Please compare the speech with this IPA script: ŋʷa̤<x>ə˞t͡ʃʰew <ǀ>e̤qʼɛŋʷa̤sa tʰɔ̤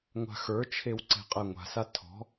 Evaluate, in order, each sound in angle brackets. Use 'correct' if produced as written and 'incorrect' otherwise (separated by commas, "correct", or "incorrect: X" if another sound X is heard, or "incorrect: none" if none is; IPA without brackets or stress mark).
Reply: correct, correct